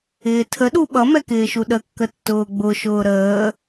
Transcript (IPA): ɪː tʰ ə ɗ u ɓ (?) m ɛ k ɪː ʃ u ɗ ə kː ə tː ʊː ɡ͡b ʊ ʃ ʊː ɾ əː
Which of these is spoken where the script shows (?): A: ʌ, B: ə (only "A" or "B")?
A